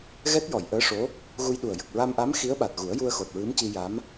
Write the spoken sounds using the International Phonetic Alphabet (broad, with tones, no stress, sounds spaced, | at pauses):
ɣ ɛ˦˥ t̚ j ɔ˨˩˨ j ʔ əː˧˥ ʂ o˧˥ | ɣ u˧ j ɗ u˨˩ ə̯ j ə˨˩ k̚ ɹ a˧ m ʔ a˧˥ m x i˧˥ ə̯ ɓ a˨˩ t̚ ɣ u˨˩˦ ə̯ j u˧ ə̯ x o˨˩ t̚ ɹ ɨ˧˥ m c i˧ j a˧˥ m